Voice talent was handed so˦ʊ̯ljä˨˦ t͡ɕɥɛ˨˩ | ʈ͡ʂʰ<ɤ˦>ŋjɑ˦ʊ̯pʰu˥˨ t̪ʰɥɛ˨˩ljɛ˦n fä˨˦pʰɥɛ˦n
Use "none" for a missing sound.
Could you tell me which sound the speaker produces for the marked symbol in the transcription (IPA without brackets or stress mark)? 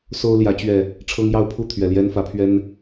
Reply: ɤ˦